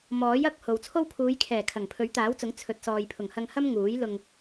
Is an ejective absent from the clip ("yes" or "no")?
yes